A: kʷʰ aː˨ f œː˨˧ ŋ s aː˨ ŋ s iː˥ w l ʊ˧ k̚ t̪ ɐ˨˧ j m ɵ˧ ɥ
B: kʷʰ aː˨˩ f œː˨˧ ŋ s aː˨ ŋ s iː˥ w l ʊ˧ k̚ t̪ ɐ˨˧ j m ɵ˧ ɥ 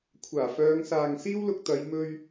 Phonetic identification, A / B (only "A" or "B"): B